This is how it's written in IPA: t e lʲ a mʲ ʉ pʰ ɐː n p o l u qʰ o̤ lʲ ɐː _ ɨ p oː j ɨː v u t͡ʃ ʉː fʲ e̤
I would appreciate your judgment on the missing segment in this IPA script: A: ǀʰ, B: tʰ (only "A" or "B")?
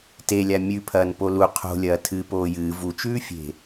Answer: B